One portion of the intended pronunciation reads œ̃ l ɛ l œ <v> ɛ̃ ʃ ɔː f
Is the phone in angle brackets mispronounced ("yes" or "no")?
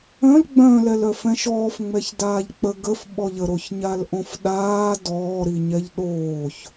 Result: yes